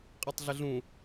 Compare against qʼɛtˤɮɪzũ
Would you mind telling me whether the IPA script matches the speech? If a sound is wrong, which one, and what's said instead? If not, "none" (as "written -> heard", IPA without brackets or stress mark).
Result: z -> ɮ